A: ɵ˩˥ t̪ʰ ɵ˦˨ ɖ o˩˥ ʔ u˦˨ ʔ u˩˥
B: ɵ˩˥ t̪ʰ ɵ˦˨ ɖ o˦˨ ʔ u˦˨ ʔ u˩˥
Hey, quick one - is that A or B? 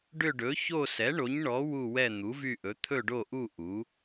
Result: B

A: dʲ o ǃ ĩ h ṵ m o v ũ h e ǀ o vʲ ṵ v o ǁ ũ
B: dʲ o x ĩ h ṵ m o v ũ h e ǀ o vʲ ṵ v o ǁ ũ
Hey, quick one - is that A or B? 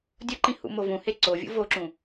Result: A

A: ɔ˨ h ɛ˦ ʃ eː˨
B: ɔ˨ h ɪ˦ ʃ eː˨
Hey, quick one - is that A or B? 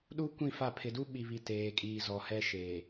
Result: A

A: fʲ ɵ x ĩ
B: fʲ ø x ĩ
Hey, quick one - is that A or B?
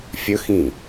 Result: A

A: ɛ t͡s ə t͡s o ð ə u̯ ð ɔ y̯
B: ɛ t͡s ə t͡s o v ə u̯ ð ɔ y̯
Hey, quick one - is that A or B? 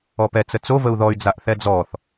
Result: B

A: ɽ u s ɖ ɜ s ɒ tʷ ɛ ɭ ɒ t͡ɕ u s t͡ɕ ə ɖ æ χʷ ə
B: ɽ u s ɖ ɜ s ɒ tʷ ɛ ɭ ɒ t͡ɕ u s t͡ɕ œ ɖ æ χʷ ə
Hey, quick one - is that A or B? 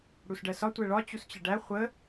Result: A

